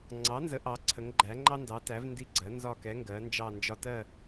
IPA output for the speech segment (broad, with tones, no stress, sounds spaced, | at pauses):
ŋ͡ǀ ɑ˩˥ n z ə˩˥ ʔ ɑ˩˥ ǀʰ ə˩˥ ŋ ɡ͡ǃ æ˩˥ ŋ͡ǃ ɑ˦ n d ɑ˩˥ t æ˩˥ v n d i˦˨ ɡ͡ǀ ɜ˩˥ n z ɒ˦˨ k ɛ˩˥ ŋ ɡ ɜ˩˥ n d͡ʒ ɑ˦˨ n d͡ʒ ɒ˦ t ɜ˦˨